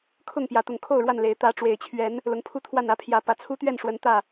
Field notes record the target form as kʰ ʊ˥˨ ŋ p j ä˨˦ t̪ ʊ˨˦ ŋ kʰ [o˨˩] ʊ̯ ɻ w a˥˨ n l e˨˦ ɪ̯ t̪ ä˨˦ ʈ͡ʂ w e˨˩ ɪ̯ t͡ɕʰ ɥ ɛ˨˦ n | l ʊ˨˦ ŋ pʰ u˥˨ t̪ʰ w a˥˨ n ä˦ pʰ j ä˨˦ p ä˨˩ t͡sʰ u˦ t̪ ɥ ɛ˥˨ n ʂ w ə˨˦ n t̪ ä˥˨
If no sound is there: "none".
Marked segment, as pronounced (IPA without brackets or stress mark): o˥˨